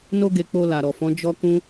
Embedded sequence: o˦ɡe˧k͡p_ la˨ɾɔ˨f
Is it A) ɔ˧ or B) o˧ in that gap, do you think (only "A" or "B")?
B